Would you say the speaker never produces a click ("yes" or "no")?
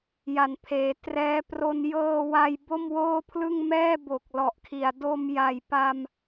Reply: yes